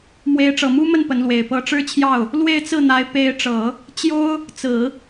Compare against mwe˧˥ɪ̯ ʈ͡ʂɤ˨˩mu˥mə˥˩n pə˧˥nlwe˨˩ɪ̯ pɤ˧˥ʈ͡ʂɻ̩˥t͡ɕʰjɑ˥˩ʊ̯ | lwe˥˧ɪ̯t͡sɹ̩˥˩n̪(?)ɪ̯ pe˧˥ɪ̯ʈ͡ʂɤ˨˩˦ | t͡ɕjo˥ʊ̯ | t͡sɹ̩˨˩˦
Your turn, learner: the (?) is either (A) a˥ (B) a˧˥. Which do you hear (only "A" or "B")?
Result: B